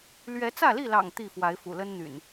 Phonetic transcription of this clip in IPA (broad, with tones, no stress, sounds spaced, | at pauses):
l ɥ ɛ˨˦ t͡s ä˥˨ l i˥˨ l ɑ̰˨˩ ŋ t̪ i˥˨ f w a˨˦ ɪ̯ f ṵ˨˩ l ə˦ n n̪ y̰˨˩ n